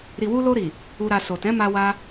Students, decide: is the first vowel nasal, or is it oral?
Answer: oral